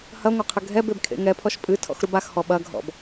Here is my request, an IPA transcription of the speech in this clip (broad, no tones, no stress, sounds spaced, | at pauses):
h ɐ ŋʷ ɐ qʰ ɘ ɡʱ ɛ b e b kʰ ḛ ŋ ɛ pʰ ɔ ʃ pʼ ɨ tʰ ɔ̰ x ɾ u b a x h ɔ ɓ ɐ ɡʱ ɔ̰ b